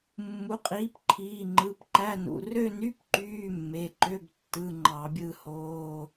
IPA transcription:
mː u˩˥ qʼ iː˩˥ p ǃʰ iː˩˧˩ ŋ͡ǃ ɯ˩˧˩ p ǃ æ˧˥˧ n ṵ˩˧˩ r ø˥˧ n y˧˥˧ p ǃ yː˧˥˧ mː e˩˧˩ ǃ ø˧˥˧ b tː ɯ˧˥˧ ŋ͡ǃ ɑ˧˩˧ bʲ ɯ˥˧ h oː˧˥˧

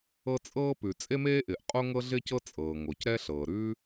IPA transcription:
ɤ˥ t͡sʼ ɤː˥ p ʉ˩ t͡sʼ e˥ m eː˥ ʔ ɪː˩ ʔ qʼ o˥ ŋ ɤ˥ ɮ ɪː˥ c ɤ˥ t͡sʼ ɤː˩ ŋ o˩ c ɾ ɛ˥ ɬ ɤː˩ ɾ ʉ˥

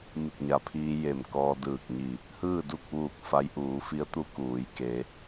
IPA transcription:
m i˧˩ k̚ ɲ a˩ pʰ iː˧ j e˧˩ m k ɔː˧ d ɯː˧˩ k̚ ɲ i˧˩ | h ɯː˥˨ d u˥˨ k̚ ʋ uː˧˩ k̚ f a˧˥ j ʔ uː˩˧ f i˧˥ ə̯ t̪ u˧˥ k uː˩˧ j k e˩˧

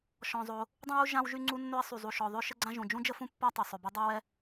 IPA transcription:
ʃ ɔ̃˩ zˤ o˩ | dˤ ũ˥ w u˥ ʒ ã˥ w ʒ y˥ ŋ͡ǀ u˥ nː ø˥ ə̯ sˤ y˩ zˤ u˩ ʃ ɔ˩ ðˤ ø˥ ʃ ə˥ ɡ͡ǀ ã˥ ʒ ũ˩ d͡ʒ ũ˥ d͡ʒ ə˥ f ũ˥ pː a˥ tˤ ø˩ sˤ ø˩ b ɛ˥ dˤ ɛ˥ w ɛ˥

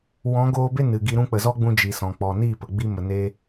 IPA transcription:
w ɔ̃˨˦ ɡ oː˧ b e˦ n ɨ˨ ɡ i˧ ɾ ũ˧ k͡p ə˨ z ɔ˦ ɡ͡b ũ˧ d͡ʒ i˨ s ɔ̃˨ k͡p ɔ˨ n i˦˨ p ə˨ ɡ͡b i˧ m ə˨ n e˦

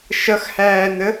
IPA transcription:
ʃ ʌ x h æː n ə

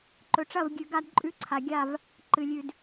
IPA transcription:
ǃ ɵ˨ ʈ͡ʂ ɐ˦˨ v ɡʲ ʉ˨ ɡ a˦ d ǃʼ ʉ˦ ǀʰ a˨ ɡʲ a˦˨ v | ǃ ɨ˨ lʲ ʉ˨ d

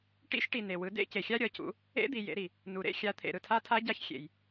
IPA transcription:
ʈ ḭ˦˥ ʃ ʈ i˨ n e˨ w ɯ˨˦ d ḛ˦˥ c e˨ xʲ a˦˥ ɾʲ ʌ˨˦ c ṵ˨˦ | ḛ˦˥ d̪ i˨ j ḛ˨˦ ɾ i˨ | n u˨ ɾ ḛ˦˥ xʲ a˨˦ t̪ʰ ḛ˨ ɾ ɯ˨ tʰ a˦˥ tʰ a˦˥ ɟ a˦˥ ç xʲ ḛ˨ j

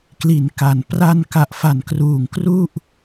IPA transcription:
k l i˩˦ n k a˩˦ n p r a˧ n k a˨˩ ʔ f a˨˩ n k r uː˨˩ ŋ k r u˥˩ ʔ

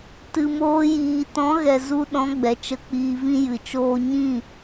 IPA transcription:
t ɨ˨ m oː˧ j iː˨ t ɔ̃˨˦ ɣ ɛ˨ z u˧ ɗ ɔ̃˨˦ ɡ͡b ɛ˨ t͡ʃ ə˧ k͡p iː˧ v ĩ˦ j ɨ˨ t͡ʃ oː˦ ɲ ĩ˦˨

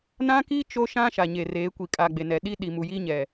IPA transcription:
n ã˦ k iː˦ t͡ʃ o˦ ʃ ã˦ ʃ a˨ ɲ e˨ r eː˨˦ kʷ i˨ kʼ a˨ ɡ͡b e˨ n ɛ˨ ɗ iː˦ ɗ i˨ m u˨ j iː˦ ɲ ɛ˨

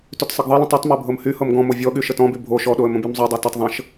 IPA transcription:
t y t sˤ ɤ ɡ ðˤ ɤ l ə̃ tˤ y tˤ m ɤ bʱ ɤ m h y h ɤ m ɡ ɔ̃ m o vʲ ɔ ɠ y ʃ ə t ɔ̃ b y bʱ o ʃ ɔ ɗ o ə̯ m ə̃ b y m zˤ y dˤ o t ə tˤ ðˤ ə̃ ʃ

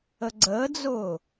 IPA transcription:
ə ɡ͡ǀ əː d͡z ʊː

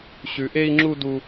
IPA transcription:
ɕ ʉ˧ ʔ e˦ i̯ ŋ͡ǁ u˦ d u˦

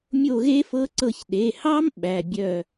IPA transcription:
mʲ o˦˨ ɣ e˦˥ f ɤ˦˥ ǀ ɤ˦˨ ç ɗ e˩˧˩ h ɑ˦˥ m ɓ æ˩˧˩ bʲ œ˦˨

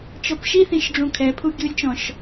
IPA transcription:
t͡ʃ ɔ p ʃ i θ ĩ ʃ ɖ͡ʐ ũ kʰ ɛ pʰ u ɡʲ u lʲ t͡ʃ ɔ̃ ʃ

